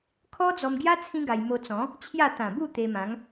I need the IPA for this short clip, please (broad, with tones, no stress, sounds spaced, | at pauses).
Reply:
kʰ ɔ˦ d͡z ɔ˧ m ɡ j a˦ t͡sʰ ĩ˦ ɡ a˧ j m o˧ t͡s ɔ̃˨˦ | t͡ɕʰ j a˥˧ t̪ ã˨˩ b u˥˧ t̪ e˧ m ã˨˦ ŋ